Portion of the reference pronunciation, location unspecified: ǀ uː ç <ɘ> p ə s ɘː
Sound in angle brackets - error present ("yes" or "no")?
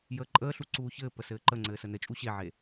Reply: yes